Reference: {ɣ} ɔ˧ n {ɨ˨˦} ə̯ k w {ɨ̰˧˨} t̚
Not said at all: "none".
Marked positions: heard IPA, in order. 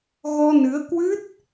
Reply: ɣ, ɨ˨˦, ɨ˦˥

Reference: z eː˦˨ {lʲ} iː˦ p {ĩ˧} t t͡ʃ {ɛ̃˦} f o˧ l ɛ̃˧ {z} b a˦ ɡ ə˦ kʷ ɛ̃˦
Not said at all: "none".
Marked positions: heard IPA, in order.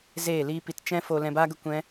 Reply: l, i˧, ɛ̃˦, none

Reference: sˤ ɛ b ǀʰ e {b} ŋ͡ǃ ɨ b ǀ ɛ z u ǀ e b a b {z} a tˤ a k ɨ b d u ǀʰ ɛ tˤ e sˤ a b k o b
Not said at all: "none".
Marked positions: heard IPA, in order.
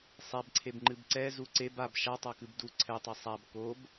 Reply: b, ʃ

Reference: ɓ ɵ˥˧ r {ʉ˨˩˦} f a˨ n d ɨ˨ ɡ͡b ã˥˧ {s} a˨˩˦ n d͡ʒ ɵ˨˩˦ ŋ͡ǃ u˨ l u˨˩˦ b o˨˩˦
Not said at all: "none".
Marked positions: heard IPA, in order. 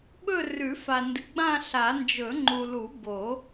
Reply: ʉ˨˩˦, ɬ

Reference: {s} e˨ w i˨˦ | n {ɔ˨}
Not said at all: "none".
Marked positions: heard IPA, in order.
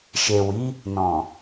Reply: ʃ, ɔ̃˨

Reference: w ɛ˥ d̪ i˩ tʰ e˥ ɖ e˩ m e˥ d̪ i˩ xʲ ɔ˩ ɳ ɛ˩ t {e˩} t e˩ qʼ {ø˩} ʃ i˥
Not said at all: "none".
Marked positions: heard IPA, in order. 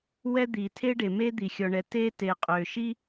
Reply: e˥, ø˩

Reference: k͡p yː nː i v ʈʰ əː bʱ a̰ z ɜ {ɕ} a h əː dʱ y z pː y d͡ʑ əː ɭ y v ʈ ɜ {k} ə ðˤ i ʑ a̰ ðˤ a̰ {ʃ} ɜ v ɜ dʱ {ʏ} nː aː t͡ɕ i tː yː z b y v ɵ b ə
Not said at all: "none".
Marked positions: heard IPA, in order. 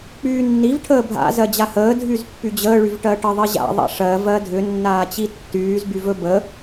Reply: d͡ʑ, ʈ, ʂ, ʏ

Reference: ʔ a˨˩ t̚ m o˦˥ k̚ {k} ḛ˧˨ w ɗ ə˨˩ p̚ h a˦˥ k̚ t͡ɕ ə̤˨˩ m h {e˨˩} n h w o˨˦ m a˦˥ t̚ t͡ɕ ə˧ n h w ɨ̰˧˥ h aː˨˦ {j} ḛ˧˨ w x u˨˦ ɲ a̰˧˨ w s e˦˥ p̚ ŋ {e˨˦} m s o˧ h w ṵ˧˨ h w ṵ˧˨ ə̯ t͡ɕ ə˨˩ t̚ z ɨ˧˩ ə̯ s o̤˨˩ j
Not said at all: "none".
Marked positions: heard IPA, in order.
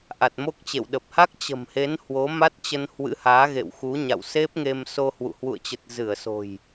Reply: t͡ɕ, e˨˦, ɣ, e˧

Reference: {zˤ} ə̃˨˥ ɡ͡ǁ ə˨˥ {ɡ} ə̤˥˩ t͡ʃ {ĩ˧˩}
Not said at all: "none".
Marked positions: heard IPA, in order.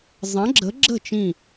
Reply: zˤ, ɡ͡ǁ, ĩ˧˩

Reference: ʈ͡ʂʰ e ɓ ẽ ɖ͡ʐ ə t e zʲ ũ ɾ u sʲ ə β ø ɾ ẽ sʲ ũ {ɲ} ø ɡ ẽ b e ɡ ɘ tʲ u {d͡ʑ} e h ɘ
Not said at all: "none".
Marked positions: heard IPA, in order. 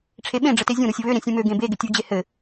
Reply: m, d͡ʑ

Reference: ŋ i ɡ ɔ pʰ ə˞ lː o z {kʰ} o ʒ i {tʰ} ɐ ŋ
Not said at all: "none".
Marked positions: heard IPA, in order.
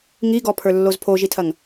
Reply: pʰ, tʰ

